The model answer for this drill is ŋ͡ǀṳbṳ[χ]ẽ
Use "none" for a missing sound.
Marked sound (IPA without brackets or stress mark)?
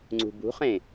χ